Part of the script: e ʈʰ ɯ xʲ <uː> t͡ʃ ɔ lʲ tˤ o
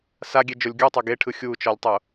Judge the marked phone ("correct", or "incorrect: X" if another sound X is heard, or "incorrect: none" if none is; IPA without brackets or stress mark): correct